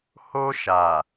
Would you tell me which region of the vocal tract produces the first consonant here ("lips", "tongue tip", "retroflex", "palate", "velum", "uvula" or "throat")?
throat